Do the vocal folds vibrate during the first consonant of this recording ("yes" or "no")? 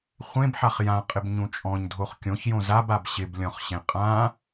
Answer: no